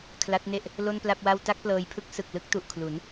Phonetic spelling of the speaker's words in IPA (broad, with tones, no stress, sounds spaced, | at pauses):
kʰ l a˦˥ t̚ n e˥˩ ʔ | l o˥˩ n p l a˥˩ p̚ w a˥˩ w t a˥˩ k̚ p l ɤː˧ j pʰ ɯ˥˩ k̚ s ɯ˨˩ k̚ l ɯ˥˩ k̚ t u˨˩ ʔ kʰ l u˩˦ n